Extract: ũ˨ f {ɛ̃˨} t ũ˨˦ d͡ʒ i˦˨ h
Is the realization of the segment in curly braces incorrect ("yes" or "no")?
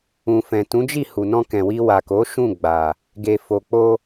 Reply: no